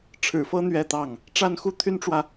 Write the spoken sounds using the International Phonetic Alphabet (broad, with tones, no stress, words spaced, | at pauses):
ʈ͡ʂʰɻ̩˨˩fɤ˥ n̪ɥɛ˥˧t̪ɑ˥˩ŋ | ʈ͡ʂa˥˧nxu˥˩t̪ʰy˥nʈ͡ʂwä˨